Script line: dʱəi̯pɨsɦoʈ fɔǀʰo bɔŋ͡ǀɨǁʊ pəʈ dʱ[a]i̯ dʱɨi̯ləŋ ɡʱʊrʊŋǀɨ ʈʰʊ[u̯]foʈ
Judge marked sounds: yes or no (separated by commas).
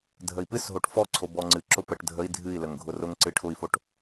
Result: no, no